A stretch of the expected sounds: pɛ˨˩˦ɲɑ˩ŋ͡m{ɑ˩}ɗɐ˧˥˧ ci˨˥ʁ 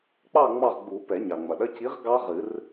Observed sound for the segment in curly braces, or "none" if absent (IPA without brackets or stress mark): ɐ˩